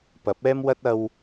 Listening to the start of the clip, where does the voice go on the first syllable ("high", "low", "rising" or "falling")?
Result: rising